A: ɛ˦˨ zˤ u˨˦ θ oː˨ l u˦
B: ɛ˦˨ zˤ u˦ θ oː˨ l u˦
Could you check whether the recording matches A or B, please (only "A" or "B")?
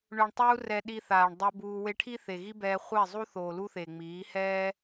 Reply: B